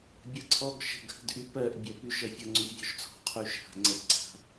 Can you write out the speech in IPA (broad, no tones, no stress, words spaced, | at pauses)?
bʲʌǀʰɔɡ ʃə̤ɡhə̤dʔy pɜʔbʲɜ pyʃ ʌfʲʌ ŋ͡ǀyʔvʲɔʃt͡sʰɔ̤ qʰyʃha̤ ŋ͡ǀəpǀʰa̤